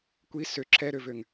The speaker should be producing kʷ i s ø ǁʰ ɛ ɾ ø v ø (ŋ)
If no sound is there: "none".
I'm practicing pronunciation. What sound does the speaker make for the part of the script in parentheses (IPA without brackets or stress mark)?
ŋ